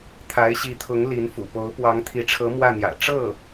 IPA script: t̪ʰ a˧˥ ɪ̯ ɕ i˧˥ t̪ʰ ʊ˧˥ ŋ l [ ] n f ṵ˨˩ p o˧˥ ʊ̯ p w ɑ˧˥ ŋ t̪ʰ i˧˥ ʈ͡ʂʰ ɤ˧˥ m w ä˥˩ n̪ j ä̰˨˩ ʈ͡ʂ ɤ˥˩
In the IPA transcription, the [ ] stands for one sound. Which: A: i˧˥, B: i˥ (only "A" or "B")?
A